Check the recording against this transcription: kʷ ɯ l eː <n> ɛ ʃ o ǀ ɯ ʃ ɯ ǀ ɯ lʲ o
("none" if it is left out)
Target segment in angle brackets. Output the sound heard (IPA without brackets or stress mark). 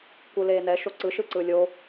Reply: n